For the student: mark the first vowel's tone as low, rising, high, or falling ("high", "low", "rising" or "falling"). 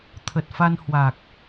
low